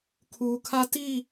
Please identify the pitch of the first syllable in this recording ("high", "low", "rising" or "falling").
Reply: low